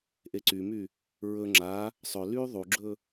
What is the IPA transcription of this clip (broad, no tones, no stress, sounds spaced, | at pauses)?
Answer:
ʔ e ǀ y m y | ɹ ɵ ŋ͡ǁ a | sˤ ɵ l y ðˤ u ɡ͡ǁ ɵ